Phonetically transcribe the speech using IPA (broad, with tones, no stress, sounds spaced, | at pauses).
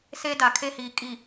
s e˦ d a˨ kʰ e˦ h iː˨ kʼ i˨